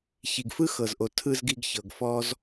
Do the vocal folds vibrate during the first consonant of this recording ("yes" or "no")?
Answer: no